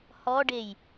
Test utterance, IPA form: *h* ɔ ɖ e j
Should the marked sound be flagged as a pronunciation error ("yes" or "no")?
no